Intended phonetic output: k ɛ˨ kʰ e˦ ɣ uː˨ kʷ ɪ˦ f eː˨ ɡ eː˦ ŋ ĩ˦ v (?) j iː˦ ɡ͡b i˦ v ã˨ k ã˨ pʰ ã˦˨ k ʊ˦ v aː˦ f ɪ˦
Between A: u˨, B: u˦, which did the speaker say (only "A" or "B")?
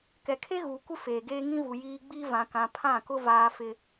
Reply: A